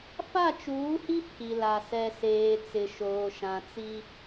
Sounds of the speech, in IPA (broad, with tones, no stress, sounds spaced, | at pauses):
f a˦˨ t͡ʃ uː˨˦ h i˦ pʰ i˨ l a˨ s ɛ˨ s eː˨ t͡s ɪ˨ ʃ oː˨ ʃ ã˨ t͡s i˦